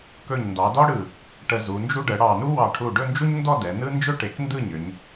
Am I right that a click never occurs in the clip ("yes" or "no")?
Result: yes